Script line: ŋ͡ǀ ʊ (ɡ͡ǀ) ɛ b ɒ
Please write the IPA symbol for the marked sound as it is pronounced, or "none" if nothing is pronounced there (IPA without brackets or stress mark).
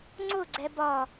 ɡ͡ǀ